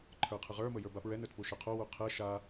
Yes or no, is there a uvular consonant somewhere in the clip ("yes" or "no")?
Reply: yes